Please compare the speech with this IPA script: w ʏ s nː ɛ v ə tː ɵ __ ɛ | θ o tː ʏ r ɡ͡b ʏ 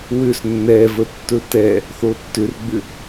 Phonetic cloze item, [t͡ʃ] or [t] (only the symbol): t